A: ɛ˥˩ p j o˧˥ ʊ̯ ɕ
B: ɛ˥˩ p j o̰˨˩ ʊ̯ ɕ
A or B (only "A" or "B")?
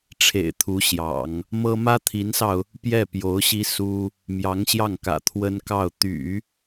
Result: A